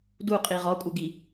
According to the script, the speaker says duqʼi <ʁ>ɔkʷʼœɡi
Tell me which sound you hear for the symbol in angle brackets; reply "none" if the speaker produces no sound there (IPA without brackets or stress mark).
ʁ